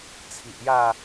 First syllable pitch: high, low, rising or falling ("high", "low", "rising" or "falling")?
low